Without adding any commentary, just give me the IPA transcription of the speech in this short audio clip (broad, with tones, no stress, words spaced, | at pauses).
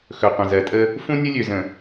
xɵ˨qʷə̃˨zɜ˨tʼə˦ | fũ˦nʲə˦lʲø˨zə̃˨